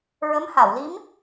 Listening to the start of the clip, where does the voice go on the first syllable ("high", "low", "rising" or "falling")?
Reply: rising